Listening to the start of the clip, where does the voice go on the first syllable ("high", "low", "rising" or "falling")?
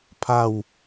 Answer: falling